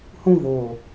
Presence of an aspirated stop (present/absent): absent